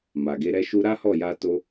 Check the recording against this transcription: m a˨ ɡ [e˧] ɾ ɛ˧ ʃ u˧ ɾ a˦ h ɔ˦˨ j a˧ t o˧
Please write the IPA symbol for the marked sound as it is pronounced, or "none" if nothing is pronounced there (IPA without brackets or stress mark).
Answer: e˧